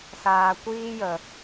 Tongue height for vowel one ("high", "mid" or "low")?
low